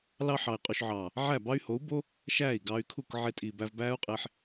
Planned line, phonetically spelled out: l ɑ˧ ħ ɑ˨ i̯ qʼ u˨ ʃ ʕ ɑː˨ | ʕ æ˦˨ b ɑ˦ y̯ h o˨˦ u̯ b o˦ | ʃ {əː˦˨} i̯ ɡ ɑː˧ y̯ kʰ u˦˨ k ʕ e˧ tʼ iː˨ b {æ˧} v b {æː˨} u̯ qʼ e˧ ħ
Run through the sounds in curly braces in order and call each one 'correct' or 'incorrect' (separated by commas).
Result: incorrect, correct, incorrect